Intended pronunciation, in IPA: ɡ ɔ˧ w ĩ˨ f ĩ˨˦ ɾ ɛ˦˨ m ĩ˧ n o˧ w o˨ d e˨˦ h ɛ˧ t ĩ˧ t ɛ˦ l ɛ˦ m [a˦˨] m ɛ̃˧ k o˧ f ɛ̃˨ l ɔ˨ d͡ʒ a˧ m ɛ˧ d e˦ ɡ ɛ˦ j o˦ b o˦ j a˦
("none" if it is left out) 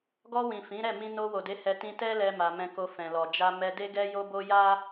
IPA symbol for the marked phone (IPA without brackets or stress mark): a˧